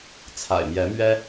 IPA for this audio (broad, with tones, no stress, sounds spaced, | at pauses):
t͡sʰ a̰˨˩ ɪ̯ m j ɛ˨˦ m ɥ ɛ˦